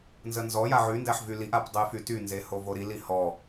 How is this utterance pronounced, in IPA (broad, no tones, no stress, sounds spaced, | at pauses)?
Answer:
n z ə n z ɔ j a ʕ y n d æ ħ v y l i ʔ a p dˤ ə j f y t y n z e h o v o ɾ i l i h ɔ